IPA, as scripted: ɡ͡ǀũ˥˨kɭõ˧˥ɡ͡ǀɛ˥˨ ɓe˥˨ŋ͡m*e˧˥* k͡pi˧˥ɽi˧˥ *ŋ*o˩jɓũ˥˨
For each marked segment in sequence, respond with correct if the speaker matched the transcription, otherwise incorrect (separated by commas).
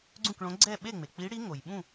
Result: incorrect, correct